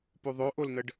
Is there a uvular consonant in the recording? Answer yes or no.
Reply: no